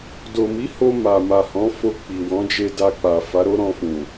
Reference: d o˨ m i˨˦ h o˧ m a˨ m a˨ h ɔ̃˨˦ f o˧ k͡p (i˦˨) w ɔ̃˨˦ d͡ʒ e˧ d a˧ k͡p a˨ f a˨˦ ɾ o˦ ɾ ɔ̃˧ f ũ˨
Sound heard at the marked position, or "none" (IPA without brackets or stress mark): i˨